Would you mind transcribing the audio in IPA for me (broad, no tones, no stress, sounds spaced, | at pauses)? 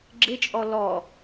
ɡ͡ǁ ɪ t͡ʃʼ ɔ l ɔ